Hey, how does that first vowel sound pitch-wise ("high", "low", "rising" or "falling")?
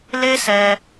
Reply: high